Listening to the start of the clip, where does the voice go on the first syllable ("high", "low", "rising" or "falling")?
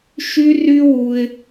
high